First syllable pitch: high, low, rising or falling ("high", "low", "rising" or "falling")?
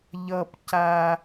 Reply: high